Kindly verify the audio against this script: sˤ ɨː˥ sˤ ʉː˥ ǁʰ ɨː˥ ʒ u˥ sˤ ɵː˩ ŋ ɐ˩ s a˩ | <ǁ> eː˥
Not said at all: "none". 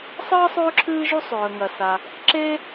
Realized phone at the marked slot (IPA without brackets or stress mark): ǁ